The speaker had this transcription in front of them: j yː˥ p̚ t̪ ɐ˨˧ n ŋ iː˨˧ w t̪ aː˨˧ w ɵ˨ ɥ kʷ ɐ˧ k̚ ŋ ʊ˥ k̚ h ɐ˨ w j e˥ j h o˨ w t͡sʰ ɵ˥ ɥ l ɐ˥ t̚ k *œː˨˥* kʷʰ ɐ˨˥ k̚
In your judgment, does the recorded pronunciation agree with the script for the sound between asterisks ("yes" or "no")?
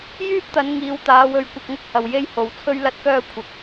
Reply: no